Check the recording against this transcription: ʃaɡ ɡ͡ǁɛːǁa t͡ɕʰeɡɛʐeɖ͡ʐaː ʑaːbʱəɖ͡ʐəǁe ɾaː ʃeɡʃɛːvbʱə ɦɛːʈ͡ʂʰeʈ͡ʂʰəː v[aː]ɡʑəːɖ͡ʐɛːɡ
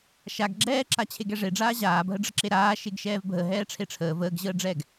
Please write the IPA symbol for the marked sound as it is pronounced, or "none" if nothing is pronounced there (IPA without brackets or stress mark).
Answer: əː